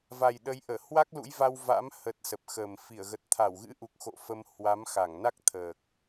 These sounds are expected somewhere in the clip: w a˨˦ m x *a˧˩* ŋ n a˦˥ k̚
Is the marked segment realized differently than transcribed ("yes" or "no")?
no